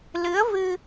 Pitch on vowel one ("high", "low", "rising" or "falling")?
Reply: rising